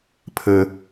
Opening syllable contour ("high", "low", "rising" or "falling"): low